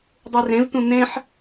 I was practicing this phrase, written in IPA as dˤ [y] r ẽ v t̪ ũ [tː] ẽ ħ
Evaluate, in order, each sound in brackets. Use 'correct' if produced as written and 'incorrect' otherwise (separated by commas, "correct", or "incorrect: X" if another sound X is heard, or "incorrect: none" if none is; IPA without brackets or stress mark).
incorrect: u, incorrect: n̪